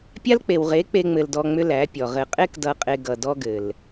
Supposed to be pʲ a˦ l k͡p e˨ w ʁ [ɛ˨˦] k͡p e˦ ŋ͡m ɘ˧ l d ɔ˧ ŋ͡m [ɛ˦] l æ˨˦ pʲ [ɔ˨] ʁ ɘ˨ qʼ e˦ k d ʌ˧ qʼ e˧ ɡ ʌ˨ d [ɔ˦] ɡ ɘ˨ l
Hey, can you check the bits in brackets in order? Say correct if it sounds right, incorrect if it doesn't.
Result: incorrect: e˨˦, incorrect: ʏ˦, correct, correct

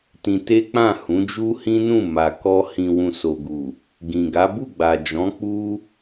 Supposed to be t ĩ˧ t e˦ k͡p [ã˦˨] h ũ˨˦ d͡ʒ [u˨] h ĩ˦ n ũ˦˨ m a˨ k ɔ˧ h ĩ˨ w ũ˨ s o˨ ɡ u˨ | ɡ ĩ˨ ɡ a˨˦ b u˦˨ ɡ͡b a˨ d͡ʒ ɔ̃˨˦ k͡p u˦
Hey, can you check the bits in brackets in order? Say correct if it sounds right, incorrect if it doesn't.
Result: correct, incorrect: u˦

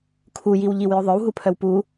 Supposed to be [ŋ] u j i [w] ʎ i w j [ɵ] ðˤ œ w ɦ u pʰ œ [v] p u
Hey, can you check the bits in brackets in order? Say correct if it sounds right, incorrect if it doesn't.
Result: incorrect: kʰ, correct, correct, incorrect: w

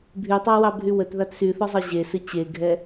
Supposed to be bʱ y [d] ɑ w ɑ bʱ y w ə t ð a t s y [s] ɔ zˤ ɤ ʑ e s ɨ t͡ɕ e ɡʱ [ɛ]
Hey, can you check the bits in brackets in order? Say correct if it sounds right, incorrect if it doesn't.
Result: incorrect: tˤ, incorrect: θ, correct

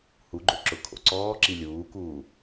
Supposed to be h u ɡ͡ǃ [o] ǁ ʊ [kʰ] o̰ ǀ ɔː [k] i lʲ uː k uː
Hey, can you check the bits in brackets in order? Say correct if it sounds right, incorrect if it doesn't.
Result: correct, correct, incorrect: ǁ

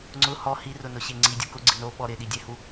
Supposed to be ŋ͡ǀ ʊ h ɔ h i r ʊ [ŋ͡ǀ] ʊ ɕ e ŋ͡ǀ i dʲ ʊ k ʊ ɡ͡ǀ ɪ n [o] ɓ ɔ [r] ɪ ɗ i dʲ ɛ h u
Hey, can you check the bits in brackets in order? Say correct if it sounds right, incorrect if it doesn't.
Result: incorrect: n, correct, incorrect: ɾ

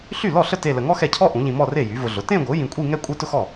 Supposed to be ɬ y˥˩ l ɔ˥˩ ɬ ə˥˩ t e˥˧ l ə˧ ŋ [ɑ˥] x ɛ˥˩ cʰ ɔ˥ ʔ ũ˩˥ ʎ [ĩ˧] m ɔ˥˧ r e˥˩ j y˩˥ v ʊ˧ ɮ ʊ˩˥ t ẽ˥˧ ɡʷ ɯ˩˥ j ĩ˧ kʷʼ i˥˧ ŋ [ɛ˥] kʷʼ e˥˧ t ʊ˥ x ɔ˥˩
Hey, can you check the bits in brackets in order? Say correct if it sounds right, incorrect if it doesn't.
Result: incorrect: ɔ˥, correct, incorrect: ɛ˥˧

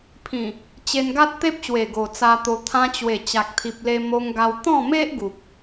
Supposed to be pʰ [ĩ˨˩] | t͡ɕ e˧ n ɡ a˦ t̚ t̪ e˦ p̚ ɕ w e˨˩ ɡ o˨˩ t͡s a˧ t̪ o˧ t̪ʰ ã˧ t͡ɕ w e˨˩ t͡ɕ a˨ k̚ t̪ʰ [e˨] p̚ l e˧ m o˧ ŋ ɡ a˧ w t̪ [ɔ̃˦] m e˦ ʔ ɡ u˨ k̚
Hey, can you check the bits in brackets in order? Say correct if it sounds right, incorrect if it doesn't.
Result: correct, incorrect: i˨, incorrect: ɔ̃˥˧

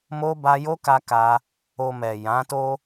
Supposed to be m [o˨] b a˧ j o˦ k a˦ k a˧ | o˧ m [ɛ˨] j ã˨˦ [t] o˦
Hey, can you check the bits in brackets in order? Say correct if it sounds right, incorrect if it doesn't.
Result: incorrect: o˦, correct, correct

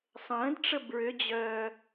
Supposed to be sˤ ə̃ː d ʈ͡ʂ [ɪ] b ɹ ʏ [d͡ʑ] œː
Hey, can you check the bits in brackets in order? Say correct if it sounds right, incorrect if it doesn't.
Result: incorrect: ə, correct

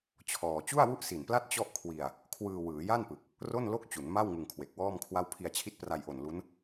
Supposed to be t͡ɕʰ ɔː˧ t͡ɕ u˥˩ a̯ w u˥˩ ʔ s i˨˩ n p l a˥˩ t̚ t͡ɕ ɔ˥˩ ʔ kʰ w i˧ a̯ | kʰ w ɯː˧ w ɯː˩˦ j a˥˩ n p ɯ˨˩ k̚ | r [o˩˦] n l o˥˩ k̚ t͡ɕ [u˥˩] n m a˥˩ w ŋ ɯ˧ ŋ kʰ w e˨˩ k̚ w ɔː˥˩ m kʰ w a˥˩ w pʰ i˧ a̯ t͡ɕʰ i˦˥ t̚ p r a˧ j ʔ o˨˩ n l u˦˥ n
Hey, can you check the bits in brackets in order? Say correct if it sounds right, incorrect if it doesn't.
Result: incorrect: o˥˩, incorrect: u˩˦

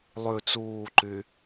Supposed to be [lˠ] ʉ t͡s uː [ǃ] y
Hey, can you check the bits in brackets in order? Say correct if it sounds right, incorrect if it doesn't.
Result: correct, correct

